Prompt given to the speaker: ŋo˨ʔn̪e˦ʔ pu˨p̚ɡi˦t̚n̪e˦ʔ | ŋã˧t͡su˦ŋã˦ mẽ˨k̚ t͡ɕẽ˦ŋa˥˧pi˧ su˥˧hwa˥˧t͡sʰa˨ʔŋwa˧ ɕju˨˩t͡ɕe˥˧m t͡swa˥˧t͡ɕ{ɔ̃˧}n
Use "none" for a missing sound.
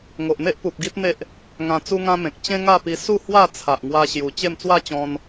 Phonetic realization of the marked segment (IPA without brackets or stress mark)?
ɔ̃˧